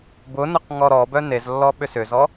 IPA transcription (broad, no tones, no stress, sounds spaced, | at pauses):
b ʊ n ʊ q ŋ ɔ ɾ ɔ b œ n e z lː ɔ ɓ ʏ s ʏ z ɔ